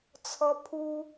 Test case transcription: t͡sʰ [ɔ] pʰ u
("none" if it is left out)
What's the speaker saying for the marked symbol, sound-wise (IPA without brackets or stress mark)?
ɔ